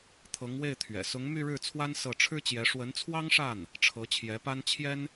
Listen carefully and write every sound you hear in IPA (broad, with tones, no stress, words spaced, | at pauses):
t̪ʰɤ˧˥ŋwe˥˩ɪ̯t̪ʰɥɛ̰˨˩ sʊ˧˥ŋ my˥˧ɻɻ̩˥˩t͡sʰwa˥n sɤ˥˩ ʈ͡ʂʰɻ̩˥t͡ɕjɛ˧˥ ʂwə˧˥nt͡sʰwɑ˥ŋʂa˥˩n | ʈ͡ʂʰɤ˧˥t͡ɕʰjɛ˧˥pa˥n t͡ɕʰjɛ˥n